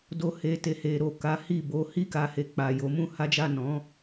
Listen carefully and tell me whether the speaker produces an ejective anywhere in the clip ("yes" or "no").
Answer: no